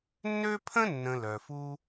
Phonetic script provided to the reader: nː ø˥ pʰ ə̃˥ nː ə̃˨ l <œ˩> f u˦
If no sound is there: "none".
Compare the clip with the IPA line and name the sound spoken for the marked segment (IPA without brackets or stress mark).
œ˩